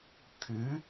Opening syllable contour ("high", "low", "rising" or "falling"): rising